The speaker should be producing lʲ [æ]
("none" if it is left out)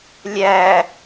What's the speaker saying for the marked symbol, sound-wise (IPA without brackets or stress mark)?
æ